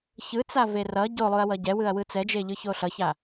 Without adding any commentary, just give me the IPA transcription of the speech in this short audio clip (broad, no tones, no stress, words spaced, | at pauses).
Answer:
çɯ t͡saverʌ ɟolˠuɐ̯wʌ ɟɛwɯɐ̯ wɯt͡sɛd͡ʒe ʎɯçoɬʌça